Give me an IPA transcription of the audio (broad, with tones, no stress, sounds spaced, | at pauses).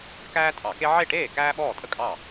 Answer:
k æː˥ tʼ ɑ˧˩˧ k e˥ ʕ e˥˩ ʈ eː˥˩ k æː˥ ɓ ɔː˥˩ tʼ ə˥ kʼ ɑ˥˩